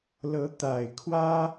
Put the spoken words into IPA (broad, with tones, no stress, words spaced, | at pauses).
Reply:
lɤ˧˥t̪a˨˩ɪ̯kʰwä˥